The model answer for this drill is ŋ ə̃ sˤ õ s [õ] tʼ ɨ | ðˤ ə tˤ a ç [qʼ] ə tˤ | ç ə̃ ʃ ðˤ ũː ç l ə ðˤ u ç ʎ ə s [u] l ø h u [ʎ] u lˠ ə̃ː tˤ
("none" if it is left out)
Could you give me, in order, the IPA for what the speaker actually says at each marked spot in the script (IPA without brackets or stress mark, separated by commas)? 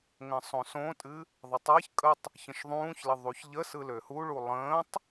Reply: õ, kʼ, ɯ, ɭ